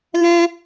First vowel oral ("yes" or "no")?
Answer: no